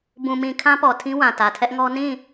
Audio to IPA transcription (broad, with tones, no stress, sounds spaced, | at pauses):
b ũ˨ m ĩ˨ kʰ ã˦ p ɔ˨ tʰ ĩ˦ w ã˨ t ä˨ tʰ ɛ˦ ʔ ŋ ɔ˦ n ĩ˦˨